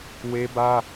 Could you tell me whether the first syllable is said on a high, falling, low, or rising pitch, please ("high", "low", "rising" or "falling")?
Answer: high